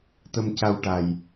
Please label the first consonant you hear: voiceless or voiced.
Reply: voiceless